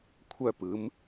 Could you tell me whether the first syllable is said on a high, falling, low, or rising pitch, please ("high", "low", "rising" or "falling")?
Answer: falling